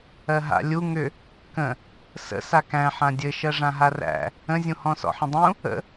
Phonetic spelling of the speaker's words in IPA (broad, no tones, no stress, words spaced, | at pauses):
ɜɦa̰ lʲu ŋʏ | kə̃ | sə̰ sakæ̃ ħãdʲɘ ʃɜʐãɦaræ̰ | ə̃zʲũ hɔ̃sɔ̰ħə̃dˤũ | ə̰